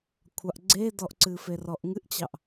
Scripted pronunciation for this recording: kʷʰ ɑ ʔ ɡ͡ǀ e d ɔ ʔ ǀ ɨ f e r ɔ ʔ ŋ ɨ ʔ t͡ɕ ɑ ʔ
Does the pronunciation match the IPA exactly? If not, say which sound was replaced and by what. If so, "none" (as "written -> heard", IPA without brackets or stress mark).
none